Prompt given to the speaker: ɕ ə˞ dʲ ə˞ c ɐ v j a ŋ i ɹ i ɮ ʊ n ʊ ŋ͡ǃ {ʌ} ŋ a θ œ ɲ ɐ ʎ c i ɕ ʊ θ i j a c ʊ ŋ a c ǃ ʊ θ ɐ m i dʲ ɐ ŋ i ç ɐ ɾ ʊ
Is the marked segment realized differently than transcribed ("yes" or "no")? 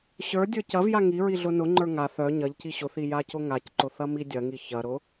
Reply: yes